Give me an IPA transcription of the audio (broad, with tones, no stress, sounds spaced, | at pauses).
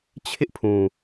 t͡ɕʰ ɪ˦ ʔ pʰ ũ˨